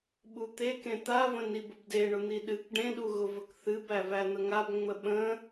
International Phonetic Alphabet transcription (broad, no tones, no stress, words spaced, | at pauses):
ɓut̪ekẽ t̪avə̃ nibʊbdeɳʊ n̪iɗɨk ɖẽɗuɣʊvək θɨb ævæn̪əŋab ŋ͡məɓə̃